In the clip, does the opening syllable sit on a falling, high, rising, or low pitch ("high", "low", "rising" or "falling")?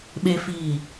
low